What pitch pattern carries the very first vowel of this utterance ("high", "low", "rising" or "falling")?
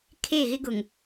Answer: falling